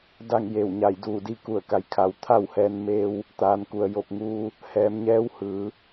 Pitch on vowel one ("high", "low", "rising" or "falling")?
falling